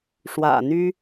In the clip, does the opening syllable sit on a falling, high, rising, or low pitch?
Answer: low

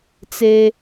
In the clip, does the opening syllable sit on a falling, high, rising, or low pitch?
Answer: high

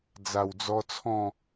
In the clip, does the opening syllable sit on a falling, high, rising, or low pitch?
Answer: low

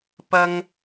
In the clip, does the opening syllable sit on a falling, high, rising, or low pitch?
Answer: high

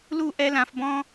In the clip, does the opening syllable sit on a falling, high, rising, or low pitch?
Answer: falling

